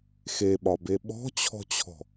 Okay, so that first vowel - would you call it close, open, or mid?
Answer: mid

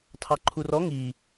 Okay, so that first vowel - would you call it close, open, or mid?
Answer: open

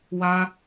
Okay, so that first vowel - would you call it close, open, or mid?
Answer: open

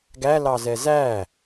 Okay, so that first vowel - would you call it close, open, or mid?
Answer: open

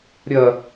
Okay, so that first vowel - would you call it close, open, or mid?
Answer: open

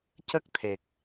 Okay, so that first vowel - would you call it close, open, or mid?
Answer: mid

